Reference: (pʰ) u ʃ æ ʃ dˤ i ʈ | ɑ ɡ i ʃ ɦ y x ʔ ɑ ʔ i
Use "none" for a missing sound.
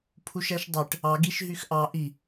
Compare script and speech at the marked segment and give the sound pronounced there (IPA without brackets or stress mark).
pʰ